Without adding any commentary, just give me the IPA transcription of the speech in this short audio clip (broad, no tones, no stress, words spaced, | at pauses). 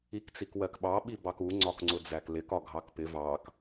ikt͡sikwɜkɓɑ ɓibɑku ŋ͡ǀɒkŋ͡ǀʊd͡zæklɪk ɒɡʱɑkpɪ vɑk